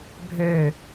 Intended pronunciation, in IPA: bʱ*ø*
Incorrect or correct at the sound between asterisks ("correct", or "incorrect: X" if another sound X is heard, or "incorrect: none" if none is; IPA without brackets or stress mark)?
correct